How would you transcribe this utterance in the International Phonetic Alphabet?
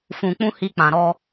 f ũ˨ k͡p ũ˧ h i˧ k͡p ã˨ ɾ ɔ˧

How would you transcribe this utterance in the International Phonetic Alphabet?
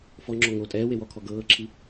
f ɔ ŋ͡ǁ ɔ ŋ o tʼ ɛː w e w ɔ kʰ ɔ ɡ ɤː ǁʰ i

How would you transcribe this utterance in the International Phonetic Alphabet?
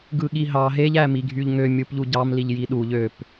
ɡ ɯ ɠ i ɦ ɑ ɦ e ʎ æ m i ɡʱ y ʎ ŋ ø mʲ ɯ p ʎ u ɟ ɑ m l i ʎ j i ɗ u ʎ ø p

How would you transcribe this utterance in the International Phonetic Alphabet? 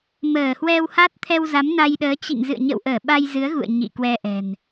m əː˧˩ h w ɛ˧ w h a˦˥ t̚ t̪ʰ ɛ˧ w z a˨˦ m n a˧ j ɗ əː˨˦ t͡ɕ ḭ˧˨ ŋ z ɨ̰˧˨ ə̯ ɲ ə̰˧˨ w ʔ əː˧˩ ɓ a˧ j z ɨ˨˦ ə̯ ɣ ṵ˧˨ ə̯ ɲ ḭ˧˨ k w ɛ˧ ʔ ɛ̤˨˩ n

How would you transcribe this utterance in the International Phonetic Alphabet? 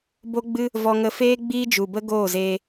b o˦ ɡ͡b ɨ˦ | v ɔ˧ ŋ ə˧ f eː˦ ɡ͡b iː˦ d͡ʒ u˨ b ə˦ ɡ oː˦˨ z eː˧

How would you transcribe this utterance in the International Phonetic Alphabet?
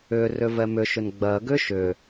ʏ r ʏ v ɛ m ʏ ʃ ʏ n ɡ͡b ɜ ɡ ʏ ʃ ʏ

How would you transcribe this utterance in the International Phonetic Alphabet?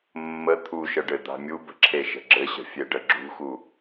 mː ə t̪ʰ u ʃ ə ɖ ɘ d̪ a̤ mʲ u b ə̤ ǁʰ e ʃ ə̤ ɡ͡ǁ ɘ ɕ ə̤ fʲ e ɖ ə ɡ͡ǁ ṳ x u

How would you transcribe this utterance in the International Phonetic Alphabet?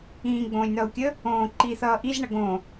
ĩː ɡ͡b õː lʲ n̪ ʌː u̯ kʲ ə | õː ǃ i θ ʌː ʔ i z ɳ ʌ ɡ õ

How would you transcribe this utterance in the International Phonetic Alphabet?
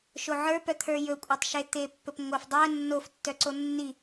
ʃ o ʕ ə˞ p œ t̪ʰ ə˞ j ɵ kʷʼ ɛ tˤ ʃ e t̪ e pː ɵ p ŋʷ ə f dˤ ɜ nː o f tː œ ǀ o nː i

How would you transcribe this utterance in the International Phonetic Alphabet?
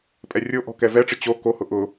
pʼ ɛ rʲ o ʔ ɔ̤ k ɛ v ɛ ʈ͡ʂ ɪ t͡ɕ o k o h ʊ ʔ ʊ

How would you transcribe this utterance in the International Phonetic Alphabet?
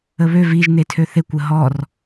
ə β ø v i ʒ n e tʰ ø θ e kʷ ə ɦ ɔ r

